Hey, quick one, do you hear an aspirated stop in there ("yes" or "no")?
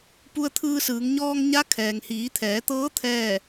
yes